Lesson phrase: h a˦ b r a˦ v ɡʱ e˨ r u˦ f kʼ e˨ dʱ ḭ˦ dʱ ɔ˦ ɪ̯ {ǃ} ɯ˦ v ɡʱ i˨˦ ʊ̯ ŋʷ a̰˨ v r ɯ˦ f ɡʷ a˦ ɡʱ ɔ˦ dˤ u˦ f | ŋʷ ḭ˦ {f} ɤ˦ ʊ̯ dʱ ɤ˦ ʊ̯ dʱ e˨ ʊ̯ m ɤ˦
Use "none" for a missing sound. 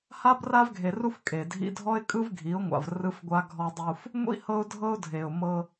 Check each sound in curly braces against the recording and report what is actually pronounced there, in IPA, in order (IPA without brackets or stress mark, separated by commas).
kʼ, h